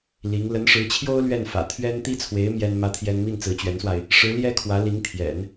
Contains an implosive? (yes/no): no